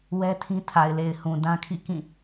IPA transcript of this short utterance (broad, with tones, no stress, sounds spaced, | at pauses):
w ɛ˦ tʰ ĩ˦ tʰ a˨ ɪ̯ l e˨ ɪ̯ h ũ˨ d ã˦ kʰ ḭ˦˨ k ĩ˦˨